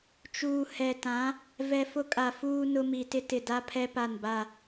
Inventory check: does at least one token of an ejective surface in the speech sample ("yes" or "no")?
yes